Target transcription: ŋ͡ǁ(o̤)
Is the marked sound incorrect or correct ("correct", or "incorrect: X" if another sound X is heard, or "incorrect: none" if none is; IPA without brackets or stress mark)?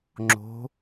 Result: correct